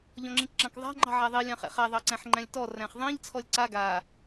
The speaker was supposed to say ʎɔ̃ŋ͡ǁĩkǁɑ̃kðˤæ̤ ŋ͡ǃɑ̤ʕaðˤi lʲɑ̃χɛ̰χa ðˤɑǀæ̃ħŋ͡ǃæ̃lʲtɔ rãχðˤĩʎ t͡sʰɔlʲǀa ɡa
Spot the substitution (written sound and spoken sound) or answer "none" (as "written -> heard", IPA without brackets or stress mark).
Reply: ã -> æ̃